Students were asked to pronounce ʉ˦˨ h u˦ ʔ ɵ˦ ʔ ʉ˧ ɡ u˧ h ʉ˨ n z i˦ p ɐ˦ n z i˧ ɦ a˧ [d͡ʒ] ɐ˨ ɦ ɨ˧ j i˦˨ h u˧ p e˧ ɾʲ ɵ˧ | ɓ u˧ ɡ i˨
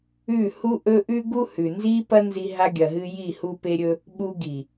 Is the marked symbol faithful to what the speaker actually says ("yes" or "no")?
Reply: no